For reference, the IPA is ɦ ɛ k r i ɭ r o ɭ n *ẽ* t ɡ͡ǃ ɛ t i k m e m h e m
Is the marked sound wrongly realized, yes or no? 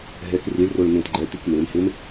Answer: no